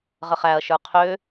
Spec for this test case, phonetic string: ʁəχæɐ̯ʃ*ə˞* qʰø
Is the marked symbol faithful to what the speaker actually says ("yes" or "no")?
yes